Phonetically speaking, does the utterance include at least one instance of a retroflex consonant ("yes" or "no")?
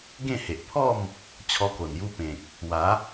no